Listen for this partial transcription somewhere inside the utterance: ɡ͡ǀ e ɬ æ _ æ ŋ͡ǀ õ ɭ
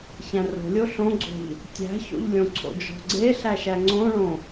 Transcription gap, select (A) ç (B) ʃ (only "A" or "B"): B